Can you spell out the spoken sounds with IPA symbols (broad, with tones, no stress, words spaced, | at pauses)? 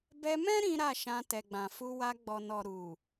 bɛ˧mɛ̃˦ ɾĩ˦ɾa˦˨ʃã˧ tɛ˨ɡ͡bã˨fu˧wa˧ ɡ͡bɔ˨nɔ˨ ɾu˨